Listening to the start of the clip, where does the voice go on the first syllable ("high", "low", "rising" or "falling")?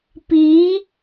rising